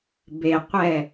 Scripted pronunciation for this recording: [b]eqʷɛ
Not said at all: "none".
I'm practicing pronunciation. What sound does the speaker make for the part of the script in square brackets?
b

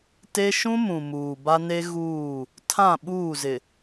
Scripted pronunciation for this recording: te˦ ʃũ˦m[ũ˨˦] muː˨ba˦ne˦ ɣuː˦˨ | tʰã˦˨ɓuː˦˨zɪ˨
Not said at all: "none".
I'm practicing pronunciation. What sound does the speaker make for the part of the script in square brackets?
ũ˨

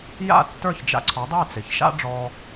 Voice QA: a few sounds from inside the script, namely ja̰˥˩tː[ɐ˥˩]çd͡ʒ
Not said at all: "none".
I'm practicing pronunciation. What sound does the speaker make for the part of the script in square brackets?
ə˞˥˩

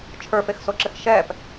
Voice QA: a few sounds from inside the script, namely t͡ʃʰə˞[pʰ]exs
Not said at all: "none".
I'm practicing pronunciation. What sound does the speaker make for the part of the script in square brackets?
f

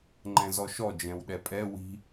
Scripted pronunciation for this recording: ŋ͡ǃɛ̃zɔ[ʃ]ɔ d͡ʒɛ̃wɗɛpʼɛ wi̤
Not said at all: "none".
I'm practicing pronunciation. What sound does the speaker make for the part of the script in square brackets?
ʃ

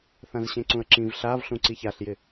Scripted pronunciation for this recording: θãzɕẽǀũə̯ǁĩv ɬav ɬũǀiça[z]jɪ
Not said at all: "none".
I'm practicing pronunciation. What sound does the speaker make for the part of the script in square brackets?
ɬ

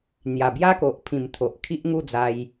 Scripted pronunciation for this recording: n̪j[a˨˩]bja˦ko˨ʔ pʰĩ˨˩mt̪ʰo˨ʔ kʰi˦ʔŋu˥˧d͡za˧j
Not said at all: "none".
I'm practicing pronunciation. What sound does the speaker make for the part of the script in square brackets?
a˨˩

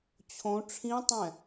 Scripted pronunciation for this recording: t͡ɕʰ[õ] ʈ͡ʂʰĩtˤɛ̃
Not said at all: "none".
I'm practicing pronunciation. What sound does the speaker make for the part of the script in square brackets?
õ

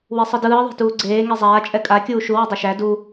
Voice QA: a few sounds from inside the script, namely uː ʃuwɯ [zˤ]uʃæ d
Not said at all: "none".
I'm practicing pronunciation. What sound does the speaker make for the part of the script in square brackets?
dˤ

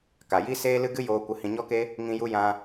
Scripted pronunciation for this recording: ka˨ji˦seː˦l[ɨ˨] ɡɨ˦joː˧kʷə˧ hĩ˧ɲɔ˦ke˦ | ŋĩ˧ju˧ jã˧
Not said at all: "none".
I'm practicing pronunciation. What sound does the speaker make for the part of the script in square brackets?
ɨ˦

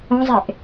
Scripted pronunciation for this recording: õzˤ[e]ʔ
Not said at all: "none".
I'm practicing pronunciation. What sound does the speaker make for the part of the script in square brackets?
e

